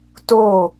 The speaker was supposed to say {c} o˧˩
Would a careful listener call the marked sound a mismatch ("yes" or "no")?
yes